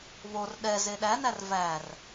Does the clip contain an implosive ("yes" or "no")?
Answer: yes